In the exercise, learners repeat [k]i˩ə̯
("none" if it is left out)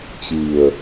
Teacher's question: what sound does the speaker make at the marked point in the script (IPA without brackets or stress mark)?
t͡ɕ